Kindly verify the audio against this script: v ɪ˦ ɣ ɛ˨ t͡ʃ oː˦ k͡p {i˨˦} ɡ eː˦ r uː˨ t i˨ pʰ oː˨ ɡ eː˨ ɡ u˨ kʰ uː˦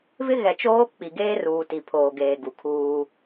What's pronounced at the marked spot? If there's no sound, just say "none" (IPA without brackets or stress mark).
i˨